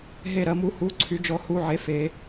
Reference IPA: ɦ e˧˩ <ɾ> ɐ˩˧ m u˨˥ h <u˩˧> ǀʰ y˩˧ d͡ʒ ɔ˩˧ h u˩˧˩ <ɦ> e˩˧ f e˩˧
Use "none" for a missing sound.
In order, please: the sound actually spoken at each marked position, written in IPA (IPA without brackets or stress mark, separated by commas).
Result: ɾ, u˩˧˩, ʕ